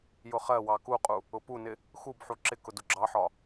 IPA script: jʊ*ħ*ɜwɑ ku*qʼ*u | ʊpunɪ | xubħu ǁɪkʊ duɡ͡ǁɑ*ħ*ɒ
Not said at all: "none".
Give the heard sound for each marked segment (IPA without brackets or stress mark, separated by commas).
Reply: χ, qʼ, ħ